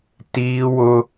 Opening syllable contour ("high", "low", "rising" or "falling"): high